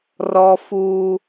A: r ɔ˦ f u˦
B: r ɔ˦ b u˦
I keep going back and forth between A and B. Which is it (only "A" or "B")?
A